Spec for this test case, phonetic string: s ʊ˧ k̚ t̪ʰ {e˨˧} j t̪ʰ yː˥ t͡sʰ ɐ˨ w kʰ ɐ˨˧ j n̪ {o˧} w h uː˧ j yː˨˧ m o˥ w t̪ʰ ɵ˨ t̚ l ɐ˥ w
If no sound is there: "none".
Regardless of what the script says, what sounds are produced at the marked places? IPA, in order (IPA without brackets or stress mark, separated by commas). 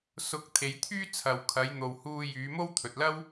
e˨˧, o˨